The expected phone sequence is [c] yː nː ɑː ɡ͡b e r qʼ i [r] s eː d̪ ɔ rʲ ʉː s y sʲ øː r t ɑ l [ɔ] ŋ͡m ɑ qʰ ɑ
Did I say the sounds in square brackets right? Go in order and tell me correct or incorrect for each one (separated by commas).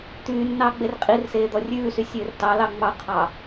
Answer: incorrect, correct, incorrect